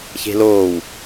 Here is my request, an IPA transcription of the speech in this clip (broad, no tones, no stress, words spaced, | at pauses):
çe̤loːw